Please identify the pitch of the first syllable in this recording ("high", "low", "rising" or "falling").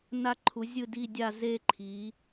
falling